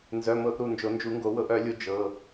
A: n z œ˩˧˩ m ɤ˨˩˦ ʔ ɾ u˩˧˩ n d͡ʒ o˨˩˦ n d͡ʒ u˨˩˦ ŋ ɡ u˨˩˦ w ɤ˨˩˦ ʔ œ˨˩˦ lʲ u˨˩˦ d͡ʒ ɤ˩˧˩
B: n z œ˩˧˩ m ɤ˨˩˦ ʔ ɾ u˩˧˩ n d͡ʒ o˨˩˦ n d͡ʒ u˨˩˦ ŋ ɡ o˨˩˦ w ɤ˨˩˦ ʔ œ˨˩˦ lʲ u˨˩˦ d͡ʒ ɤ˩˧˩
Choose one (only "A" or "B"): B